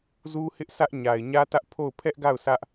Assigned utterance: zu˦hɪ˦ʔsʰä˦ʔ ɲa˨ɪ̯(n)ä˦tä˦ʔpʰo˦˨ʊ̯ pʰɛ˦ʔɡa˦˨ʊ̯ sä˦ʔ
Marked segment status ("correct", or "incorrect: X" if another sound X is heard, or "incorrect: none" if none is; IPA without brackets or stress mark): incorrect: ɲ